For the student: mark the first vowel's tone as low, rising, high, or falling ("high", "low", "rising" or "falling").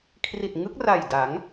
low